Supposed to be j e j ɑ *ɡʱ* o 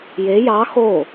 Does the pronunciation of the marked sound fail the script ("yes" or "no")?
yes